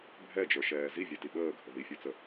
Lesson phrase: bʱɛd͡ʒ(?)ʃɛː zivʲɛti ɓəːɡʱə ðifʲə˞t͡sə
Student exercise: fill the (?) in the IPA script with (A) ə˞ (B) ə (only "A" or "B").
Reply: A